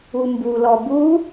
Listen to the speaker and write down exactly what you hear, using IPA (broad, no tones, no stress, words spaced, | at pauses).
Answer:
umbulɔ bu